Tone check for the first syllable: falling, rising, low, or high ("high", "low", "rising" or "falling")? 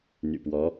low